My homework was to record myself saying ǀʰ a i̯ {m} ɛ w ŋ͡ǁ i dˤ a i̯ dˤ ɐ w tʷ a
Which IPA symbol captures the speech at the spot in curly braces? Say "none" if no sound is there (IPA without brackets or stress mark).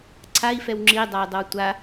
f